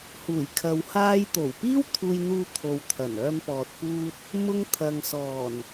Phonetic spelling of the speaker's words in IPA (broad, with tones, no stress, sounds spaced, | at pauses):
h uː˨˩ j kʰ ɐ˨ w h aː˧ j t̪ o˨˩ w p iː˥ w t̪ʰ uː˧ j n̪ uː˧ t̪ʰ o˨ w t̪ʰ ɐ˨˩ n œː˧ m p ɔː˨ t̚ p uː˧ t̚ | m ʊ˧ ŋ t̪ʰ ɐ˨ ŋ s ɔː˨˩ n